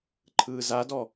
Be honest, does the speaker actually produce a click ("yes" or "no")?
yes